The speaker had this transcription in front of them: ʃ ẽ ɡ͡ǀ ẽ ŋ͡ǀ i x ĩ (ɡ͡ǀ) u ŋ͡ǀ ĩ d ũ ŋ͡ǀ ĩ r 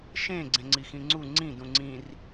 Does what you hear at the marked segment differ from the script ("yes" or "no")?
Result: yes